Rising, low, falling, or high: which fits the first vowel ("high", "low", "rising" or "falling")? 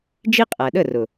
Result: high